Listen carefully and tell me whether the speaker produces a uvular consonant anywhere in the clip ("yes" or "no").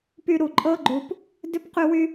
yes